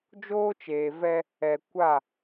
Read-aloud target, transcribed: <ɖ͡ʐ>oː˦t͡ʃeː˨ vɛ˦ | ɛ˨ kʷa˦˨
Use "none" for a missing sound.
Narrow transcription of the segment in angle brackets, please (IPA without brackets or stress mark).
d͡ʒ